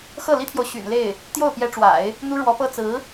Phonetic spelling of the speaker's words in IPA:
x ɤ˥˩ l i˥ t̪ʰ j o˨ ʊ̯ ɕ y̰˨˩ n l e˥˩ ɪ̯ | t̪ j o˥˩ ʊ̯ p j ɛ˧˥ ʈ͡ʂ w a̰˨˩˦ ɪ̯ | n̪ u˥ ɻ w ɔ˧˥ p ɤ˥ t͡s ɹ̩˧˥

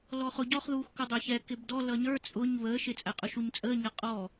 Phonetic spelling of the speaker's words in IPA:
l ɔ χ ʊ ɟ ɔ χ ð uː x k ʊ dˤ æ ç ɛ k ɪ b d ɔ l ʌ ɲ ə˞ t͡sʼ ʊ ɲ β əː ʃ ɪ t͡sʼ æ qʼ ʊ ʃ u ɲ t͡sʼ əː ɲ ʌ qʼ ɔ

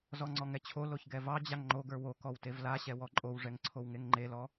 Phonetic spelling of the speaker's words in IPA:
z ɔ ŋ͡ǀ ɔ ŋ ɛ t͡ɕʰ o l o ç ɡ ɛ v ɑ d͡ʑ a ŋ ŋ͡ǃ o ɡ ə˞ w o k ɔ w t e v l a ɕ ɛ w ɔ ǃʼ o w ʐ ɛ ŋ ǀʰ o w ŋ e ŋ ŋ͡ǃ e l ɔ

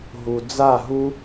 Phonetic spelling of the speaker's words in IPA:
ɦ u˨ d͡z a˦˨ ɦ u˦

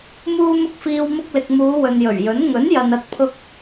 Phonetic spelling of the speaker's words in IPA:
m uː˧ m ʊ˧ k̚ f iː˨ w m ʊ˧ k̚ l ɪ˨ k̚ m uː˨˧ w ɵ˨ n j ɵ˨˩ ɥ j ɵ˨˥ n ŋ ɵ˨˥ n j ɐ˨ n ɐ˧ t̚ pʰ ʊ˧ k̚

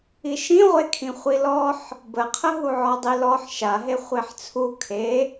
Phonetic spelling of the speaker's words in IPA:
i ʃ ĩ ʁʷ e kʰ ĩ χʷ i l ɔ ħ | b ə qʰ ə ɦ u ʕ ɔ dˤ i l ɔ ħ ʃ a ɦ e χʷ e ħ t͡sʰ u kʰ e

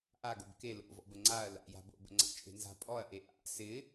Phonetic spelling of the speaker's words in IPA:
ʔ a ɡ o b k e l o̰ v ɔ̰ b ə ŋ͡ǀ a ɐ̯ l a̰ j a̤ b o̰ b ə̰ ŋ͡ǀ a̰ t͡ʃʼ e̤ n z a̤ pʼ ɔ ɐ̯ ʔ e ʔ a̰ s ɪ

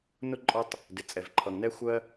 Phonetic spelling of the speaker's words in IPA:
n ʊ˦ ǃʼ ɒ˦ tˤ | d ɪ˩ t͡sʼ ɛ˩ v ǃʰ ʌ˩ ŋ n ɛ˦ xʷ ɜ˦

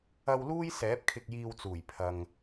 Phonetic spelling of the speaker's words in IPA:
ɐ˧ w l uː˥ j s ɛː˨˥ p̚ kʰ ɪ˧ k̚ j iː˧ w t͡s uː˨˩ j pʰ ɐ˨ ŋ

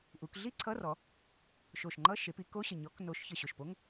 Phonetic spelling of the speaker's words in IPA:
ʔ u˩˧ k ɮ i˥˧ ǀʰ ʌ˧˥˧ r ɔ˩˧ | ʃ o˨˩ ʃ ŋ͡ǃ ʌ˧˥˧ ʃ e˩˧ p i˧˥˧ k o˧˥˧ ɕ ə˨˩ ɲ ɔ˩˧ k n o˩˧ ʃ ç ə˨˩ ɕ o˨˩ ʃ p o˧˥˧ ŋ

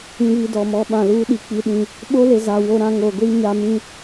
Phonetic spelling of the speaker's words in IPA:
ĩ˨ β i˨ d ɔ˨ m ɔ˦ ɓ ã˨ l uː˦ ɗ i˨ k͡p i˦ ɗ ĩ˦ | ɓ o˦ l e˨ z a˨ w o˦ ɾ ã˦ ŋ o˨ ɡʷ i˦ ɲ a˦ m ĩ˦

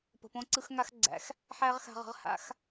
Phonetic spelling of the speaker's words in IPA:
p ə̤˩ p õ˧ ǀ ɯ˧ x ŋ a˧ x ɡ͡ǀ æ̰˩˧ x | ħ æ˥ ʁ x a̤˧ ʁ ə̤˧ ʁ h a̰˧˥ x

